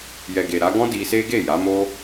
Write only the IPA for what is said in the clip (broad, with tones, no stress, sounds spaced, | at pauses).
j ɛ˨ ɡ e˨ ɾ a˨˦ ɡ ɔ̃˦ d i˧ s e˦ ɡ e˦˨ j a˨˦ m o˦